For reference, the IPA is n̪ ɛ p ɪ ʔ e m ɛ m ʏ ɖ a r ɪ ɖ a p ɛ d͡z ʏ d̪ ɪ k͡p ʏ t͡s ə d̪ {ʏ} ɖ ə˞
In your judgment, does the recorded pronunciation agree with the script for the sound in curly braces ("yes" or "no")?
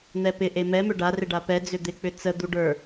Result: no